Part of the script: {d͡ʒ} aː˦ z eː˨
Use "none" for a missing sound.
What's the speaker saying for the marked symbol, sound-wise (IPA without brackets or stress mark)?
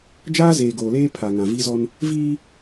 d͡ʒ